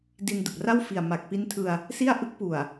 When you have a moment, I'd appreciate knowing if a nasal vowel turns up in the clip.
no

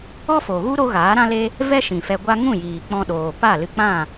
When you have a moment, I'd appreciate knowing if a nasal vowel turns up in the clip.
yes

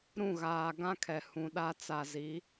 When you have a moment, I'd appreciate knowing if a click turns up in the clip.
no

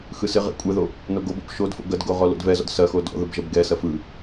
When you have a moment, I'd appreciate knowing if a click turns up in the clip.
no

